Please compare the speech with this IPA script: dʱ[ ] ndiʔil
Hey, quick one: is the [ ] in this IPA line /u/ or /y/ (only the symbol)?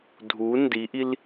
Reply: u